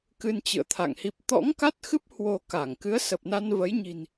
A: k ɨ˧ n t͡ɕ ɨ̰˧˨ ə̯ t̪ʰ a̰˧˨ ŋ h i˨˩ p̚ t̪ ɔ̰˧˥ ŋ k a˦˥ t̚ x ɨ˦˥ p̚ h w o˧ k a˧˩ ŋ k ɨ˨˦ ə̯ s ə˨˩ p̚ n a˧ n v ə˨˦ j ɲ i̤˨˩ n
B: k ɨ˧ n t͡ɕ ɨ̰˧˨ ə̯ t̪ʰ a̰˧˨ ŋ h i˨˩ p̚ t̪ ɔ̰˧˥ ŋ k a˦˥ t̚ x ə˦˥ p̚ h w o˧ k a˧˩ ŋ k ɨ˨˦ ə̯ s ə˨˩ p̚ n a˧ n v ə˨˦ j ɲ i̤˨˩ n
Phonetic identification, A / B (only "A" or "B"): A